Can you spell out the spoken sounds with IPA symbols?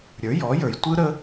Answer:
ɾʲ ə˞˩˥ j ɔ˩˥ j ə˞˩ j tʷ ɯ˥ ɾ ə˥

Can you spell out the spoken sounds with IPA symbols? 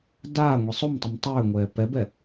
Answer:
d aː ŋʷ i sˤ o m tˤ i m tˤ ʏː ŋʷ ɛː p ɛ b ɛ

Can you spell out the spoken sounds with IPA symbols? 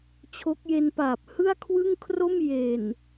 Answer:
t͡ɕʰ o˦˥ k̚ j e˧ n p aː˨˩ p̚ h ɯ˥˩ a̯ kʰ w ɯ˥˩ ŋ kʰ r o˥˩ m j e˨˩ n

